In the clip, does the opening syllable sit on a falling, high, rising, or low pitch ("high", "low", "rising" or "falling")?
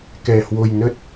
low